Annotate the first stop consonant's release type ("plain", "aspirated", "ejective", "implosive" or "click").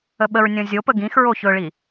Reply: implosive